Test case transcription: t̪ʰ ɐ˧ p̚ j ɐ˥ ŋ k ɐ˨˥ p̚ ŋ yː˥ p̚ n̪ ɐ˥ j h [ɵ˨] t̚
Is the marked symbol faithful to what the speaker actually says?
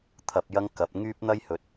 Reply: no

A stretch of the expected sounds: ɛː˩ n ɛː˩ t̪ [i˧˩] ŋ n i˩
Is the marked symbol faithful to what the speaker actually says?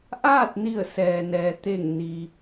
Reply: no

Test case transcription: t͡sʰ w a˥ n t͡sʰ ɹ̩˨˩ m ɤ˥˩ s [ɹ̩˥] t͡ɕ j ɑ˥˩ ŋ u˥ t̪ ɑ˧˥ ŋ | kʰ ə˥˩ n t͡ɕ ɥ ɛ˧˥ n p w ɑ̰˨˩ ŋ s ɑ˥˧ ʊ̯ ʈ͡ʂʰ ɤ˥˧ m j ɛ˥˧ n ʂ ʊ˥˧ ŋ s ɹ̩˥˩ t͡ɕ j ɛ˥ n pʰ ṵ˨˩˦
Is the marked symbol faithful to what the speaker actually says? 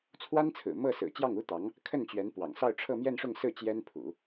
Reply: no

